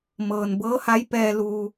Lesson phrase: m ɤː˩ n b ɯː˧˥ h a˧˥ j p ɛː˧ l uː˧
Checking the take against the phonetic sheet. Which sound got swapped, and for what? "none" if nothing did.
ɯː˧˥ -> ɤː˧˥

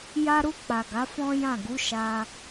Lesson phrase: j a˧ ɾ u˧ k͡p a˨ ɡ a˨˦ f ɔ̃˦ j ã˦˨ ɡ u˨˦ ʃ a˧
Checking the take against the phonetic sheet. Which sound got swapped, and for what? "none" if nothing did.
none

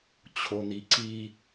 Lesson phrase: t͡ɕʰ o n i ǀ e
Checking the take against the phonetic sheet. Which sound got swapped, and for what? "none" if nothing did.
e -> i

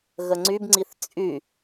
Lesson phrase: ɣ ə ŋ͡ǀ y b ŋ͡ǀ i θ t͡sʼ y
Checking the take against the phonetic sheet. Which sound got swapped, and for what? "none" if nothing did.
none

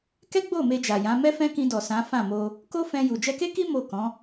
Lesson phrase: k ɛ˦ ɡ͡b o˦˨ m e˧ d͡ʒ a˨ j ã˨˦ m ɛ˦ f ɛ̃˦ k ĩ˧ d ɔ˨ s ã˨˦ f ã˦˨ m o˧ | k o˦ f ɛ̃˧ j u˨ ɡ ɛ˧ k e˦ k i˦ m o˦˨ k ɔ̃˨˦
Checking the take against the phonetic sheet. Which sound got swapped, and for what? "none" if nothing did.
ɡ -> d͡ʒ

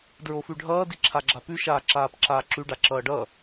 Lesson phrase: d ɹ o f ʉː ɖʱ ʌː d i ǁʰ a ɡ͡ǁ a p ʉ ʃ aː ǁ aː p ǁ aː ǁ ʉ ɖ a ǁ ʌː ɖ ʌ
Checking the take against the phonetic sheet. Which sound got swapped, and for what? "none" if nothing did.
ʉː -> ʉ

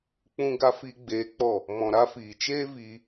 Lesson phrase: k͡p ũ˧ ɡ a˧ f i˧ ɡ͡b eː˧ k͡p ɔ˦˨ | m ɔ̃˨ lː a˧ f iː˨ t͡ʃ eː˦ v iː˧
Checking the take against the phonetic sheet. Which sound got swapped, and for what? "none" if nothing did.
lː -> ɾ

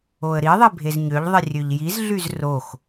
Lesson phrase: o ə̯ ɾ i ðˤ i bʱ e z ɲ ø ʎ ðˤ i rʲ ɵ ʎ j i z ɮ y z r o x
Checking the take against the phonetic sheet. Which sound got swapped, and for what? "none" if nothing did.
ɵ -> ø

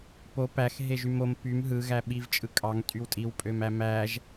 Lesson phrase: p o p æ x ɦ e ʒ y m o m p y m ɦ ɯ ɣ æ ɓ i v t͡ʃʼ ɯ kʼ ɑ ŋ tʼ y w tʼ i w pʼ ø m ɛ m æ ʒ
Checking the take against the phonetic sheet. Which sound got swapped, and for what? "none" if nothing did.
ɛ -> æ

